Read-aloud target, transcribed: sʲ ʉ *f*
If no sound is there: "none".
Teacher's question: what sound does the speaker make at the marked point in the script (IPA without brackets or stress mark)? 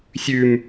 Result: m